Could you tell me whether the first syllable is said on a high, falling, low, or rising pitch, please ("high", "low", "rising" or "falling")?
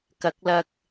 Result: rising